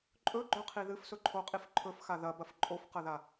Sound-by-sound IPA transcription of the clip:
ǃʼɵɡ͡ǃɵqʰi ðɨfsɵǃʰoqʼif ǃʰɵfxa ðɐbɐf ǃʼofqɐða

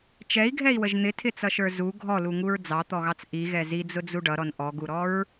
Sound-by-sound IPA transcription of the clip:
t͡ʃɛi̯ɡʱɛi̯wəʒ n̪ɪtʰɪt͡sʌʃə˞ zu ɡʱɔluŋuɹ d͡zɑt̪ɔɣɑt͡s ʔiɣɛ zid͡zʊd͡zu ɖʌɾɔn ʔɔɡuɾɔɹ

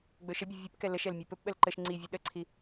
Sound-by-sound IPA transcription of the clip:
ɡ͡bɵʃəbʲɵ vʲɵpkɛ ləʃɛl mʲœpɵpɓəl ǃəʃ ŋ͡ǀivʲɵ ɗəǀʰi

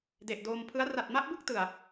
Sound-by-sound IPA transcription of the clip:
de˨˩ʔdoː˧m pʰɯ˦˥a̯ ra˨˩t̚ma˦˥ʔbɯ˥˩k̚ tɯ˨˩a̯

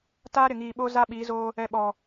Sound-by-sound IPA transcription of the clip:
taː˦ ɾɪ˨ŋiː˨ɓo˦ za˦ɓi˨˦zoː˦ | ɛ˨ɓɔ˨

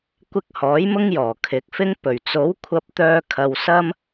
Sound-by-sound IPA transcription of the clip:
kʷɪ˧k̚hɔː˨˥j mʊ˥ŋ jɔː˨˩kʰɪ˨˥k̚fɪ˥ŋ pɵ˨˩ɥt͡so˨˥w kʷʰɐ˧p̚t̪œː˧ kʰɐ˧wsɐ˥m

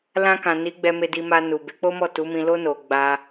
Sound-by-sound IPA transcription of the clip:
lã˧kã˨ ni˨˦ɡ͡bɛ˧me˧ di˧ma˧ nu˨be˨˦k͡po˦mɔ˦˨ tu˨˦mĩ˧lo˦ no˧ ɡ͡ba˧

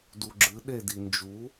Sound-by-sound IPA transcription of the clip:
duɡ͡ǁɨ ɗe dind͡ʒu

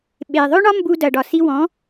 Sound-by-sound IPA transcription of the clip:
ɓe˩ ðˤɵ˥ɳɒ˥ mbu˧dɐ˩ɖɒ˩ si˧wɔ̃˩˥

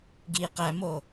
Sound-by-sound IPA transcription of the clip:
ɡi qæmo

